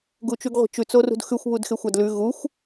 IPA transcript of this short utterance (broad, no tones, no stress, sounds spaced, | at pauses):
ɡ u t͡ʃ ʉ ɡ ʁʷ i̤ t͡ʃ ʉ t͡s o r ṳ d x ʉ xʷ β u d x e xʷ a d l ʉ ɣ u xʷ